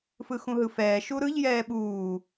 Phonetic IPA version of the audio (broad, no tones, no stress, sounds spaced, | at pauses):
f ɯ x ũ ɦ ɯ f ɛː ʃ u ɾ ɯ ʎ j ɛː ɓ uː